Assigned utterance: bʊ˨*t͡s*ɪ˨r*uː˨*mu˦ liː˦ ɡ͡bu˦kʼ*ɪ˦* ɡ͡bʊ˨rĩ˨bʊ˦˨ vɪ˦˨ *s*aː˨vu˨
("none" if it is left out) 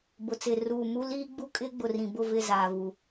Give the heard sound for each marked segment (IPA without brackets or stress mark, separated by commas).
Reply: t͡s, uː˨, ɪ˦, z